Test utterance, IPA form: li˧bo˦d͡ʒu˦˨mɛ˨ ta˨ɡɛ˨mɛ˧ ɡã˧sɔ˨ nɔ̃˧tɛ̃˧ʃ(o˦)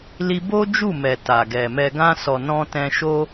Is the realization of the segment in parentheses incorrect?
no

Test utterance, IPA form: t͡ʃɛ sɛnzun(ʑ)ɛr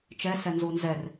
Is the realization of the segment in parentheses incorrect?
yes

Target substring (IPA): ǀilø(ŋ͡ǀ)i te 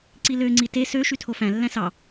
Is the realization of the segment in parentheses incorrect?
no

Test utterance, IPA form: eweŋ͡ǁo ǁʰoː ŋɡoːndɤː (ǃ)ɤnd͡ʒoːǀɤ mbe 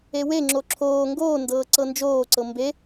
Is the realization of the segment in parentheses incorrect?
yes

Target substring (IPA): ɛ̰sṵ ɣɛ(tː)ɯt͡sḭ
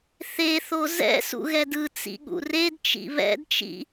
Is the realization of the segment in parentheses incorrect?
yes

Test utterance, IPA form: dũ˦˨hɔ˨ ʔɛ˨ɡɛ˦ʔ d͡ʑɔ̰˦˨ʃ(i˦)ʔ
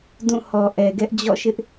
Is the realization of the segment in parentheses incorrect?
yes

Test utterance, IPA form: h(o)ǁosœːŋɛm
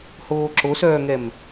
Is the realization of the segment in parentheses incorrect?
yes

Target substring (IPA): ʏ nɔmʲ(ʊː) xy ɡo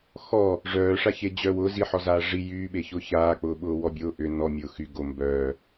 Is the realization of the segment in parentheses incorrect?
no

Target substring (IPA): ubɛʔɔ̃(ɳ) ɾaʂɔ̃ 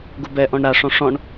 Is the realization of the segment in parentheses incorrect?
no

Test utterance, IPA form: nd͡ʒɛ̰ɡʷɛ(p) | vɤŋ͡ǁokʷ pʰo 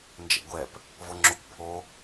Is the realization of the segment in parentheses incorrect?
no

